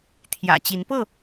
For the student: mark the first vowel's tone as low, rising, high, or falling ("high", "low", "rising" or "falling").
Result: low